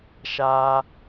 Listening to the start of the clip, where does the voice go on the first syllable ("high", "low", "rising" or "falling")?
high